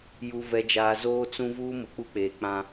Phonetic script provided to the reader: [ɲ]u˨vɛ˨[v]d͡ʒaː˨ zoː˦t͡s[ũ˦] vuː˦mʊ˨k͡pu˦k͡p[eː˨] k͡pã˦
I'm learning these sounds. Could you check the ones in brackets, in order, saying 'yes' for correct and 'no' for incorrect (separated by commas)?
no, no, yes, yes